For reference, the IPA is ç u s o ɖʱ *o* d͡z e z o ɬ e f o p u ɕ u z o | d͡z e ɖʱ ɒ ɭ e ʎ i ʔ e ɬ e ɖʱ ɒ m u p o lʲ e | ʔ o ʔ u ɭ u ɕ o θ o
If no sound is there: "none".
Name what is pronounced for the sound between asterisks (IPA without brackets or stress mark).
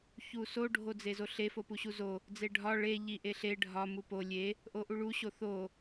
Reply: o